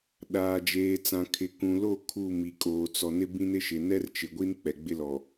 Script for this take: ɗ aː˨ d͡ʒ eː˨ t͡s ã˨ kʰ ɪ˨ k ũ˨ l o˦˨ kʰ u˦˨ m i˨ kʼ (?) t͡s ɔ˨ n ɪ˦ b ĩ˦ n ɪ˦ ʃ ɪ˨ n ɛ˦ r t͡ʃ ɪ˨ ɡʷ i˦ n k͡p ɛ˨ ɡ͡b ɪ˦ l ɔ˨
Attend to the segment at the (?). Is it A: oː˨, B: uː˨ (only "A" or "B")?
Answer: A